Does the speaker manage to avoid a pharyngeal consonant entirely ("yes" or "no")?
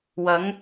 yes